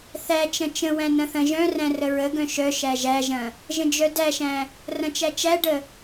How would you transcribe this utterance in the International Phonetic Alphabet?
θ æ t͡ʃ ɐ̃ t͡ʃ ə̃ w æ̃ n ɐ̃ θ ɐ̃ ʒ œ̃ r æ̃ r ə ɹ ə ɡ œ̃ ʃ œ ʃ æ ʒ æ ʒ ɐ̃ | ʒ ə̃ d͡ʒ œ d æ ʃ æ̃ | r ɐ̃ t͡ʃ æ t͡ʃ æ ɖ ə

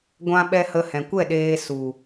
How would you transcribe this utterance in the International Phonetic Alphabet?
ɡʷ ã˦ ɓ ɛ˦ h ə˧ h ɛ̃˨ kʷ ɛ˦˨ ɗ eː˧ s u˨

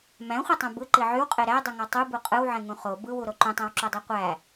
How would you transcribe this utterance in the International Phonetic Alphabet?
m æ̃ χʷ ɯ tˤ ũ b ɯ ǃ i ʕ y w qʼ e ɾ æ dˤ ɯ ŋ ɑ tˤ u b u qʼ ɯ w ʕ ẽ ŋ ũ χ o b ɯ w u ɾ o ǃ ũ tˤ æ̃ w ǁ o dˤ e qʷ æ

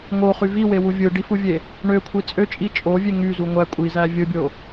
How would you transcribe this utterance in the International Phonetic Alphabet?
ŋ o χ y v i w e w u vʲ ɯ ɖ i f u vʲ e | ɳ ø kʷʰ i t͡sʼ ø t͡ʃʼ i t͡ʃʼ o vʲ e ŋ y z u ŋʷ æ kʷʼ i z æ vʲ ɯ bʲ o

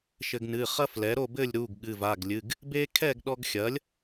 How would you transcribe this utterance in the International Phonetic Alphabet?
ʃ ɘ˧ ɡ n ɨ˩˧˩ χ ɐ˥ f l ɛ˩˥ ɾ o˥˨ b ɘ˥˨ lʲ ɾ u˩˧˩ ɡ ɠ ɨ˩˧˩ v a˩˧˩ ɡ lʲ ɨ˩˧˩ ɡ | b e˥ kʰ ɛ˥˨ ɡ ɗ ɔ˧ ɡ xʲ ɐ˩˥ lʲ

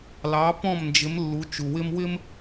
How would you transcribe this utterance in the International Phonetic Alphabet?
l ɑ˩˥ p ɔ̃˥˩ m n d͡ʒ ɪ˩˥ m lː u˩˥ t͡ʃ u˩ w ɪ˥ m w ɪ˥ m

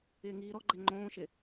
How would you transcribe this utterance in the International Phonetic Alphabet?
ɪː ŋ iː ɾ ɔ ɡ͡ǃ ɛ ŋ͡ǃ õː ʃ ɪ

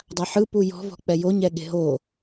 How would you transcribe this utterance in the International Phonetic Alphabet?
dˤ a ħ ɯ p u j ɔ̤ v ɔ̤ k͡p ɛ j o ɲ ɛ ɠ e̤ ɦ o

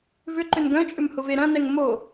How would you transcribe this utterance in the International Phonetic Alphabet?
v ʏ ǃ ʏ n ɡ œ̃ t͡ʃʼ ʏ m h ʊ v e ɾ ɐ̃ n ɛ ŋ m o

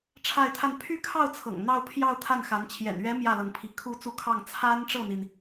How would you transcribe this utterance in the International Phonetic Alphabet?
ʈ͡ʂʰ a˥˧ ɪ̯ t̪ʰ a˥˧ n pʰ y˥˧ kʰ ɑ˥˩ ʊ̯ t͡sʰ ɤ̰˨˩ ŋ n̪ ɑ˥˧ ʊ̯ pʰ j ɑ˥˧ ʊ̯ t̪ʰ a˥˩ n x a˧˥ n t͡ɕʰ j ɛ̰˨˩ n ɥ ɛ˧˥ m j ä˥˩ l ɤ˧˥ ŋ pʰ i˧˥ kʰ u˥˧ t͡s u˥˧ kʰ ɑ˥˩ ŋ t͡sʰ a˥ n ʈ͡ʂ ɤ˥˩ n̪ i˩ n

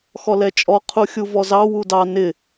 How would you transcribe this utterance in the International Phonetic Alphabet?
x ɔ l ɛ t͡ʃʼ ɔ qʰ u xʲ u v ɔ z ɑ w u d ɑ n ɪ

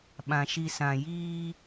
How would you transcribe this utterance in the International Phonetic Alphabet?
ɓ ã˨ ʃ i˨ s ã˨ j iː˦

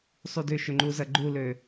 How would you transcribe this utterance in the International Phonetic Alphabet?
sˤ u d ʏ ʃ ø ŋ͡ǃ u z ɐ ɡ͡ǃ u l ø

